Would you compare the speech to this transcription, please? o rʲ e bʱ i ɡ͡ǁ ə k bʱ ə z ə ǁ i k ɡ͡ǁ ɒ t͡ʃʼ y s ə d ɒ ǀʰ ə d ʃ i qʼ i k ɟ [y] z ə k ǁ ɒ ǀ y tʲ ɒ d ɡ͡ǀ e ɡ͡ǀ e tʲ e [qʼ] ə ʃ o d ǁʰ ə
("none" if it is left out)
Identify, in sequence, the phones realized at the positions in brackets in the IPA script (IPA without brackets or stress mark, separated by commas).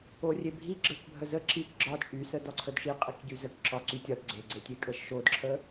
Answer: y, kʼ